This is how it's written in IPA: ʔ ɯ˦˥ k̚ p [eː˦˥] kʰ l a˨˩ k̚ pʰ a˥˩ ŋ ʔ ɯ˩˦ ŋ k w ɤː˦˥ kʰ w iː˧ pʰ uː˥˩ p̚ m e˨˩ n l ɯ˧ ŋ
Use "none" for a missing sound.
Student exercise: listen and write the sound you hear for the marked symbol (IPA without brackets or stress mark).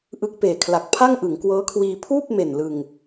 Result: eː˨˩